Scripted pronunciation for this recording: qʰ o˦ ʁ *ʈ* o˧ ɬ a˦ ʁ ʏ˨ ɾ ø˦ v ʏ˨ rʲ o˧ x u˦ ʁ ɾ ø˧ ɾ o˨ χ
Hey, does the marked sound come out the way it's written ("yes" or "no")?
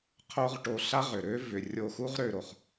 yes